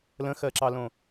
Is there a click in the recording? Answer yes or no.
yes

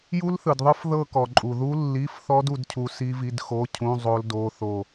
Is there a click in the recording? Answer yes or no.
yes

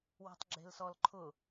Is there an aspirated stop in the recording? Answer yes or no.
yes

